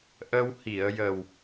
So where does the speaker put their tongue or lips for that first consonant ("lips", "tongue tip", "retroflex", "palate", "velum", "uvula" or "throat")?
throat